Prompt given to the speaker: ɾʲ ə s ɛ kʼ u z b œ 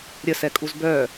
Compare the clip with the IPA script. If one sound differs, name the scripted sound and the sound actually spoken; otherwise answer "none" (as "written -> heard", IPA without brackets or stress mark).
none